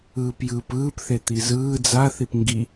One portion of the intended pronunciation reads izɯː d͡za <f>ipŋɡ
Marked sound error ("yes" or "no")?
yes